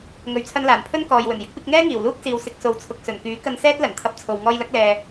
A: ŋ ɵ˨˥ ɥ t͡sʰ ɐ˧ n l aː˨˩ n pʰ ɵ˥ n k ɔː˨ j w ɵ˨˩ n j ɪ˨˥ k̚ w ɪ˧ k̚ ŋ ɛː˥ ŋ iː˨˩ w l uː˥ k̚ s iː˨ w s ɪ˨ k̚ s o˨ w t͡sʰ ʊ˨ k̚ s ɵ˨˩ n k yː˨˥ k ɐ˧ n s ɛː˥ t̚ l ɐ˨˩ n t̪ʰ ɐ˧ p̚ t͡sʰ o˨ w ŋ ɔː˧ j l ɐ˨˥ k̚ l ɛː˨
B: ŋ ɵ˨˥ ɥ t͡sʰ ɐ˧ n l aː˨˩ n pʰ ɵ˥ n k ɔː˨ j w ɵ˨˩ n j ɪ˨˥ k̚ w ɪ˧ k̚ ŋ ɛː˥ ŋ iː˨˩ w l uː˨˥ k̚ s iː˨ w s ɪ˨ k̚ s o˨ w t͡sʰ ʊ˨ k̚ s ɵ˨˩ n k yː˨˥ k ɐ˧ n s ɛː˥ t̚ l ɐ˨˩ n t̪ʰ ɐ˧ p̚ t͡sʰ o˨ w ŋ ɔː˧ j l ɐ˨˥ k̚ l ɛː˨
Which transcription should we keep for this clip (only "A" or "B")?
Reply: A